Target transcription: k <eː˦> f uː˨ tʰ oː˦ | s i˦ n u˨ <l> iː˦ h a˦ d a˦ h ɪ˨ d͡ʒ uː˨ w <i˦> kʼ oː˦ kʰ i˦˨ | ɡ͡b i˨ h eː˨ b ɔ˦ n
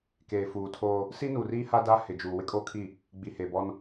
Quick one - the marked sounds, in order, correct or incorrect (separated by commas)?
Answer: incorrect, incorrect, incorrect